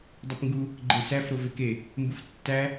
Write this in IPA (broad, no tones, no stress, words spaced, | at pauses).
dˤepŋɡu | ɡ͡ǃesæf ɾoveke | mbuftːæ